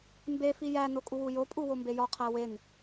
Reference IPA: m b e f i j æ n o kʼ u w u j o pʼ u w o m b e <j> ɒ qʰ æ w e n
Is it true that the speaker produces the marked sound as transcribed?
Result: yes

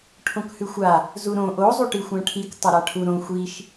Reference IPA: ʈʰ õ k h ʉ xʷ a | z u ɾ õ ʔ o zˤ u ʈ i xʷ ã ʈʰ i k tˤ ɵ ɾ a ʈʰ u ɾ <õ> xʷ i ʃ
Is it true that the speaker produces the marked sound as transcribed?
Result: yes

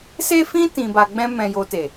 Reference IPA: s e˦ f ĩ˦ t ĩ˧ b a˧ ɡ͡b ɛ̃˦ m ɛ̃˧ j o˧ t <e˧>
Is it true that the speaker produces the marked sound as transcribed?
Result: no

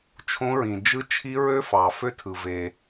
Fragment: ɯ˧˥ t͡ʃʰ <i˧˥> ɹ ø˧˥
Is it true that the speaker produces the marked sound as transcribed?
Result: yes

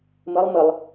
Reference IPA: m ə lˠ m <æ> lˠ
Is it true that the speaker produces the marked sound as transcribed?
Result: no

